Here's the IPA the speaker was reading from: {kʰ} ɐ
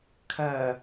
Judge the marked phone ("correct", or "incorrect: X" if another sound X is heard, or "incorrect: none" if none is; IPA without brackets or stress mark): correct